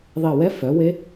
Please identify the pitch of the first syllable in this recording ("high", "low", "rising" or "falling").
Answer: falling